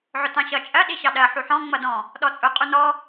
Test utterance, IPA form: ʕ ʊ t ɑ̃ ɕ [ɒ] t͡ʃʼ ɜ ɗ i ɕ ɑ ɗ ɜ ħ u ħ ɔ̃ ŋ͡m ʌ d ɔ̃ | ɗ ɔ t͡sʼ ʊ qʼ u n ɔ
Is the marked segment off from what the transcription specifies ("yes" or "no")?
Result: yes